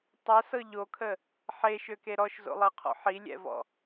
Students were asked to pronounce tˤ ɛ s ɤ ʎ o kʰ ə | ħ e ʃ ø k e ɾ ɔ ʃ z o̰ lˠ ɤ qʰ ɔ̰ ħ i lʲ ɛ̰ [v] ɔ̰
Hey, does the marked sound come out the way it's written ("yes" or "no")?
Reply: yes